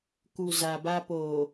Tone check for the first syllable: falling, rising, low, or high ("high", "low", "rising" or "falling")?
low